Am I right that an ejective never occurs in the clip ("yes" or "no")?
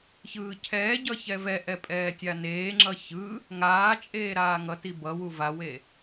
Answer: no